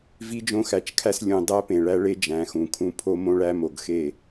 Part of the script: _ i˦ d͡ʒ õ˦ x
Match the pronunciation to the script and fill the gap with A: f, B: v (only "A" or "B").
B